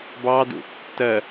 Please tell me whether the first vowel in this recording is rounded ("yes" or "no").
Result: no